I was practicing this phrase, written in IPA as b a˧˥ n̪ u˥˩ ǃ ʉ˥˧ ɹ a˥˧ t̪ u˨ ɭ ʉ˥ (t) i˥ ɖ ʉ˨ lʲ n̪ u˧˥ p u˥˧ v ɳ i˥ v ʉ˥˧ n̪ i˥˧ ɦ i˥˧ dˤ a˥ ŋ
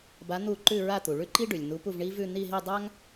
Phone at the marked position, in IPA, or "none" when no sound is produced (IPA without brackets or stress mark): ǃ